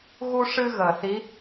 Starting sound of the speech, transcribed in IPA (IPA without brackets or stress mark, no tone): ɣ